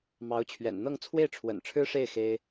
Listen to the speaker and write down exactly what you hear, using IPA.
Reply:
m ɑ˧˥ ʊ̯ t͡ɕʰ ɥ ɛ̰˨˩ n n̪ ɤ˥˧ ŋ t͡sʰ w e˥˩ ɪ̯ ʈ͡ʂʰ w ə̰˨˩ n ʈ͡ʂʰ ɻ̩˥ ʂ e˥˩ ɪ̯ x e˥ ɪ̯

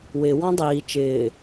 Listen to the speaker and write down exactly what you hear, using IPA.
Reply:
w ɪ w ɔ̃ dˤ iː t͡ʃ ɪː

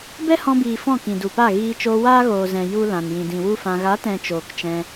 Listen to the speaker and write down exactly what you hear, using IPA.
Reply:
b ɛ˦ h ɔ̃˧ b iː˨ f ɔ̃˦˨ k ĩ˨ d u˨ p a˦˨ ɣ iː˧ t͡ʃ oː˧ w aː˦ ɣ oː˨ z ɛ̃˨ j u˦ l ã˨ n j ĩ˨ d ĩ˨ w u˦ f ã˧ ɣ a˨˦ t ɛ̃˨ t͡ʃ oː˨ k t͡ʃ ɛ̃˧

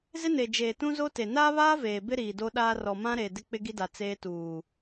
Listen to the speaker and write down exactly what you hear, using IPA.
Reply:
z ɪ˦ n e˨ d͡ʒ eː˨ t ũ˦ z o˦ t e˨ n aː˦ β aː˦ v eː˨ b ɪ˦ ɾ iː˨ d o˦ ɗ aː˦ r ɔ˨ m ã˦ ɾ eː˨ d ɪ˦ k͡p ɪ˦ ɡ i˦ d a˨ t͡s eː˦ t uː˨

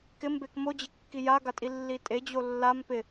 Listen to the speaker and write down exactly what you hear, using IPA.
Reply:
k ɪ m b e k m o d͡ʑ ɪ kː i j a ɡ a tʼ i lː i tʼ e d͡ʑ o lː a m p ɪ

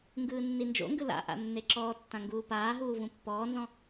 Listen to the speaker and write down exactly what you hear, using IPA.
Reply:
ŋ ɡ ɯː nː i n d͡ʒ o̰ ŋ ɡ ɯ l a̰ ʔ a̰ nː e ǁ ɔː tː ã ŋ ɡ uː p aː ɦ uː v ũ pː ɔː n z ɔ̃

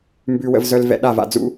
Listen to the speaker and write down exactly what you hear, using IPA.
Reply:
m b ʉ˨ w ə̰˨ v z œ˨ l v ɛ̰˨ ɗ a˦˨ v a̰˨ d͡z ṵ˦

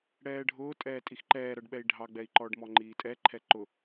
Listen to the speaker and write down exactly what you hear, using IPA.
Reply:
ɽ ɛː ɖʱ ʊː tʼ ɛː tʼ i x ǃ ɛː ɾ ʌ ɖ ɓ ɛ i̯ ɖʱ ɑ ɡ͡b ɛ i̯ ǃ ɔː ɖ m ɔ ŋ͡ǃ iː tʼ ɛ ǃʰ ɛ ǃ ʊ

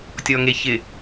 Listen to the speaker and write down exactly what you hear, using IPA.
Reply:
tʲ ɔ ŋ e ç ɪ

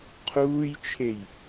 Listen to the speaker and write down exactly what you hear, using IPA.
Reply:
qʰ uː j t͡ʃʰ e j

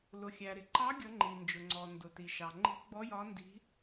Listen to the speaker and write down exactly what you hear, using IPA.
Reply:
l ʊ˩ xʲ æ˩ ɾ ɪ˩ ǃ ɑ˧˥ ɡʲ ʌ˧˥ ŋ͡ǃ i˩ n d͡ʒ ʊ˩ ŋ͡ǀ ɔ˩ n d ʊ˩ t i˩ ʃ ɑ˩ ŋ͡ǃ i̤˧˥ ɡ͡b ɔ˧˥ j ɒ˧˥ n d i̤˧˥

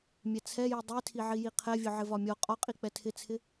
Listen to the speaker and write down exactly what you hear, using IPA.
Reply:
mʲ ɛ t͡sʰ ɛ j i dˤ i tʰ i ʕ i j i qʰ ɛ vʲ ʊ ʕ ɪ v ɒ mʲ ɔ qʼ ɒ qʼ i k͡p ɛ tʰ ɪ t͡sʰ ɪ

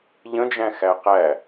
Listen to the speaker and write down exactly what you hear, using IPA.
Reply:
ʎ ə̃ d͡ʒ æ̃ x æ q æ

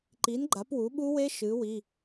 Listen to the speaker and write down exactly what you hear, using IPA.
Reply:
ǃ i˩˥ n ɡ͡ǃ a˩˥ p w u˩˥ ɓ u˦˥ w e˦˥ ʃ ɨ˩˥ w i˩˧˩

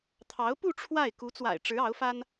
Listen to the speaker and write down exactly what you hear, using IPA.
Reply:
t̪ʰ ɑ˧˥ ʊ̯ p u˥˧ ʈ͡ʂʰ w a˥˩ ɪ̯ k u˧˥ t͡s w a̰˨˩ ɪ̯ ʈ͡ʂ ɻ̩˧˥ ɑ˧˥ ʊ̯ f a˥ n

